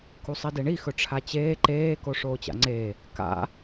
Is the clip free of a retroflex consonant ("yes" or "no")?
no